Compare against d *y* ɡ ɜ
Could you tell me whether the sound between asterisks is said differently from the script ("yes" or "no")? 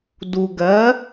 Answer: yes